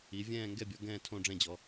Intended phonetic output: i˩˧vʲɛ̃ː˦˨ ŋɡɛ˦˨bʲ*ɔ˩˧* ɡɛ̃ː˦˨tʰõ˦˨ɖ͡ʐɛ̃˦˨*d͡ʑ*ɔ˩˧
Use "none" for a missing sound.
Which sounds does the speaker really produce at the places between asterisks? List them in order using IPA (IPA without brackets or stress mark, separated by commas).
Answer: ɔ˩˧, d͡ʑ